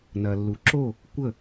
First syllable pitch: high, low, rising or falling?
low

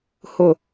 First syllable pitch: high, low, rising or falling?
low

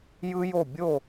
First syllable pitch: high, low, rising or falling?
high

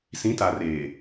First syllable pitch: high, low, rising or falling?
rising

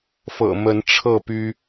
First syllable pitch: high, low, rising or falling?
low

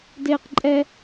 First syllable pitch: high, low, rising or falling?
high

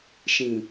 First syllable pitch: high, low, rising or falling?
low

